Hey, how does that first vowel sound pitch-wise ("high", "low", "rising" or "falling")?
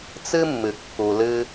high